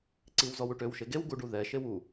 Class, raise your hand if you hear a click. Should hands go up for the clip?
yes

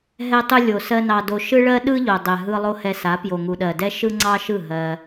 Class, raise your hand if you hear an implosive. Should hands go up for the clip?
yes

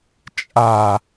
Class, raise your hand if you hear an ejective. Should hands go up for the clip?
yes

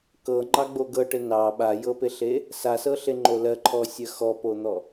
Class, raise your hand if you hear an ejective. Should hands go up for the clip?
no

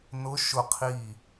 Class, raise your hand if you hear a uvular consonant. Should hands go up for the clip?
yes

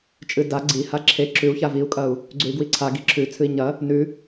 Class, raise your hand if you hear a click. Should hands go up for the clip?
yes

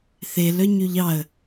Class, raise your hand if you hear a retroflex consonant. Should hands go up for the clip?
no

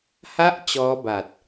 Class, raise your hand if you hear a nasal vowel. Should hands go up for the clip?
no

